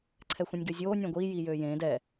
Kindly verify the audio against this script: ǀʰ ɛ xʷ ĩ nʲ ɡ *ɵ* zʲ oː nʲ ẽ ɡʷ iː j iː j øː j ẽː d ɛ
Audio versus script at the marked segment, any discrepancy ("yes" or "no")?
yes